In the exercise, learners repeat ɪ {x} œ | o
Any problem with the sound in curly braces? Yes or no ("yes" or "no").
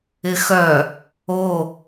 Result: no